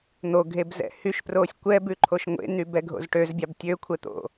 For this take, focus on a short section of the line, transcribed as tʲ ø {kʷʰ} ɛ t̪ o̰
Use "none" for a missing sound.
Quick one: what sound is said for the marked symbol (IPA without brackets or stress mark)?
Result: kʷʰ